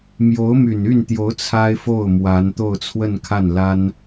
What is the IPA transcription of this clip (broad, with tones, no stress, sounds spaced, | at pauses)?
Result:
m j o˧˥ ʊ̯ m y˨˩ n y˥˩ n t̪ j o˧˥ ʊ̯ t͡sʰ a˥ ɪ̯ f o˥˩ ʊ̯ m w a˧˥ n t̪ o˥˧ ʊ̯ t͡sʰ w ə˥˧ n kʰ a˥˩ n l a˥ n